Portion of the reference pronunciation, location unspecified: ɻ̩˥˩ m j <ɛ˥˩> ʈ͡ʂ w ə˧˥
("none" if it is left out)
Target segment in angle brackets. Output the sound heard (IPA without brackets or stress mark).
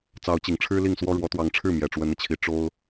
ɛ˨˩